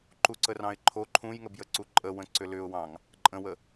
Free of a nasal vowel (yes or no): no